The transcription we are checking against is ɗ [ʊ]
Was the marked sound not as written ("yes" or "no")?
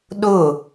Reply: no